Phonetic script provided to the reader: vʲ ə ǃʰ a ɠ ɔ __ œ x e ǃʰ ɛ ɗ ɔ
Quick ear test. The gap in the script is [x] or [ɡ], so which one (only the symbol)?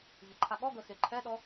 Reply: ɡ